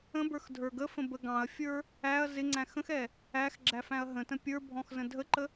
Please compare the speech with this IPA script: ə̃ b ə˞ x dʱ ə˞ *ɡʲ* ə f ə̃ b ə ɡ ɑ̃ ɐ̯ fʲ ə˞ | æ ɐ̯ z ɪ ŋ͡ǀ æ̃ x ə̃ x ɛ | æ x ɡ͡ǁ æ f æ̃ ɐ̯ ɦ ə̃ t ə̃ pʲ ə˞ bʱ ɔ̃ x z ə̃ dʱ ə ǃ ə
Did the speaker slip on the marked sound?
yes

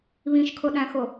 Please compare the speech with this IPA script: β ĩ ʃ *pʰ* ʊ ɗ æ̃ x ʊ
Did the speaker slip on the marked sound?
yes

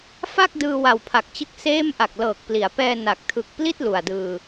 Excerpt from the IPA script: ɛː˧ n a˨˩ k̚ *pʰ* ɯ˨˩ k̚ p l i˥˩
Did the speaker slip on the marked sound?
yes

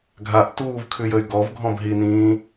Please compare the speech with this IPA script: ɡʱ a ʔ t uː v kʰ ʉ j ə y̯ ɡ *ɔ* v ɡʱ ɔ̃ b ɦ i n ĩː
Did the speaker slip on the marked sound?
no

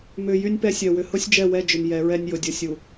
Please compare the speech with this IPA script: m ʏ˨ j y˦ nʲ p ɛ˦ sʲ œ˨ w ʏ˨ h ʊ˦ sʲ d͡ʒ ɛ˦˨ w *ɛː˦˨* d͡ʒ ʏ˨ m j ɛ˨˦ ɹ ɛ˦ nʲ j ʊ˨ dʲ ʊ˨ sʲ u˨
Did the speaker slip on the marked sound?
yes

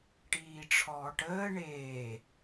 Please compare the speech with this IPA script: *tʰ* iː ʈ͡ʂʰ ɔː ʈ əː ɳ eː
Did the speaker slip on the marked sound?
yes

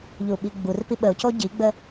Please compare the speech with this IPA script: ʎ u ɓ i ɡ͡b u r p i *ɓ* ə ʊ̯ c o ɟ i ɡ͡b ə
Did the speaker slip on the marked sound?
no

